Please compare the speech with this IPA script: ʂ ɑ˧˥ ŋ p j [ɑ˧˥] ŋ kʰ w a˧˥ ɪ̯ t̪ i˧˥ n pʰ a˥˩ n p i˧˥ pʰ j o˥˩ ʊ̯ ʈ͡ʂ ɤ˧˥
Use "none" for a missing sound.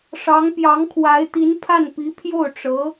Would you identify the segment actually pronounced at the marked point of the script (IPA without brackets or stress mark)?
ɑ˧˥